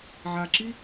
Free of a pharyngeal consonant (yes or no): no